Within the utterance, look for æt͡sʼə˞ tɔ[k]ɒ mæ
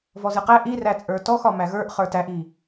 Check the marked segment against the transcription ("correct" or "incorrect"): incorrect